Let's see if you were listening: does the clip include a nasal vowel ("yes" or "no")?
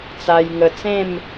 yes